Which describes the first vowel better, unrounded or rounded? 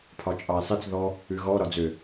rounded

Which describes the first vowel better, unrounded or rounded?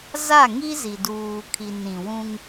unrounded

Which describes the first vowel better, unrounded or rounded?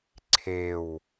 unrounded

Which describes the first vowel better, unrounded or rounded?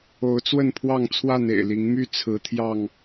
rounded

